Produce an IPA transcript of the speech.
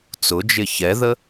t͡s ʊ d͡ʒ ɪ ç ɛ ð ə

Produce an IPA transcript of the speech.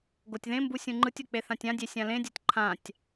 ɡ o tʲ ð ẽ m b u sʲ ũ ŋ͡ǃ ɯ tʲ o k͡p e θ ã tʲ ã dʲ e sʲ ã l ẽ dʲ o tʲ ǃʰ ã tʲ

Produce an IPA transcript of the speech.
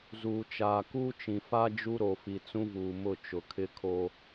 z uː˨ t͡ʃ aː˨ k uː˦ t͡ʃ ĩ˨ f a˦ d͡ʒ u˦ ɾ o˨ f i˨ t͡s ũ˦ v uː˨ m ʊ˦˨ t͡ʃ ʊ˨ kʰ ɪ˦ kʰ o˦

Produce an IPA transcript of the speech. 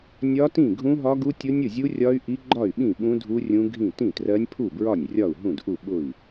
nʲ ɒ˦˥ t ĩ˥˩ ɡʱ ũ˦˥ ɦ ɒ˦˥ ɡ u˦˥ tʲ ʊ˦˥ nʲ ʊ˥˩ zʲ u˦˥ rʲ ɒ˦˥ y̯ ʔ i˦˥ ɡ͡ǃ ɒ˥˩ y̯ ɓ ĩ˥˩ ɓ ũ˦˥ dʱ u˦˥ rʲ ũ˦˥ ɡʱ ĩ˥˩ t ĩ˥˩ t r ɜ˦˥ nʲ pʰ u˥˩ b ɹ ɒ˥˩ nʲ rʲ ɒ˥˩ u̯ ɦ ũ˥˩ d ʔ u˥˩ ɓ ʊ˥˩ i̯

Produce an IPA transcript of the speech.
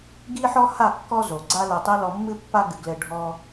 ɡ i˦ ħ ɔ˦ h a˦˨ kː ɔ˦ z o˨ ɡ͡ǀ a˦ l ɛ˧ tˤ i˦ l ɔ˧ mː ɨ˦ pː a˦ ɡ ɨ˨ ɡ l ɘ˧ ɖʱ ɔ˦

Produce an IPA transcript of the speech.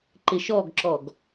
ǃ ɪ ʃ ɔ ɡ ǁ ɔ ɡ

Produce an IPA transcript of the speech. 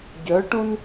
ɟ œ ʈ ũ n

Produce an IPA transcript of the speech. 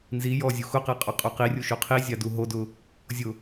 n z i j ɔ zʲ u x ʊ q e qʼ ɔ qʼ o q i rʲ u ʃ o qʰ i zʲ a d u ɦ o d ʊ | zʲ ʊ

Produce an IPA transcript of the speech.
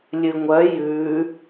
lʲ ɨ ŋʷ œ j ʉ

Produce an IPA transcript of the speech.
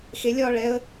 x e lʲ ɒː ɭ ɛ ə̯

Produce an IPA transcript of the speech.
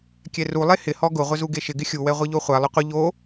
kʲ ɛ r u lˠ e h ɪ h ɔ ɡ ʊ ʁʷ ɪ z u ɡ e ʃ ɪ ɡ ɪ xʲ u w ɛ ʁʷ i ʎ o χʷ a lˠ ʊ qʷ ɪ ʎ o

